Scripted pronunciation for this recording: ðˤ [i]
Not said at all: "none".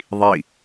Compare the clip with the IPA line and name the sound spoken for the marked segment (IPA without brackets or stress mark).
i